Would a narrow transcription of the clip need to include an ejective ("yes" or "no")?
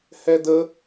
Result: no